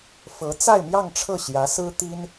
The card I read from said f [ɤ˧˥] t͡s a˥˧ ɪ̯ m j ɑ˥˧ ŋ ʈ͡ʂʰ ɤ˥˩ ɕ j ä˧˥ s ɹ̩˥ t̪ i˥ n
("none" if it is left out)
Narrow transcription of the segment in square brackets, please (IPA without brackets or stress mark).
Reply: ɤ˧˥